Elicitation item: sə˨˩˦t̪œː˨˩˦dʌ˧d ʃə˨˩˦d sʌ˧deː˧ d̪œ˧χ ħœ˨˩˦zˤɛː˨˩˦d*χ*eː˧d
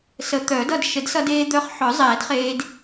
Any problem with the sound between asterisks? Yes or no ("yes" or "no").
no